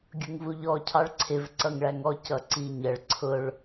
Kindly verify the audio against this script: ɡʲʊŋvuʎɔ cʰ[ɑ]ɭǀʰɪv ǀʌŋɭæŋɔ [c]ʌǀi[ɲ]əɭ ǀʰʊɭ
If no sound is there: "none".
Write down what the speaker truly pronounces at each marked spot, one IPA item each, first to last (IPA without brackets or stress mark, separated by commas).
ɑ, c, ɲ